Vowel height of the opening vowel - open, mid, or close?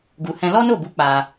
close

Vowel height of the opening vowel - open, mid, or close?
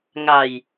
open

